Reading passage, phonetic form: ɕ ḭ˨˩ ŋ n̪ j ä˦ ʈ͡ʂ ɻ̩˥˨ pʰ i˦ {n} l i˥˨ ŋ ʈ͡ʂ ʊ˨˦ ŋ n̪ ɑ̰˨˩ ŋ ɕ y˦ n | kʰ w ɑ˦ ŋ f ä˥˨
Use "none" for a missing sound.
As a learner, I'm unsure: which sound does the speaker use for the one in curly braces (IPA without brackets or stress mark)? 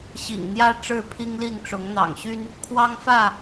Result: ŋ